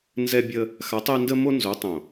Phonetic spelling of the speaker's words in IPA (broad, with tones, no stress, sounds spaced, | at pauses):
n z ɛ˦ bʲ ə˦ | x a˨˥ tˤ ɛ˦ n d ə˦ m o˦ n z o˨˥ tˤ õ˨˩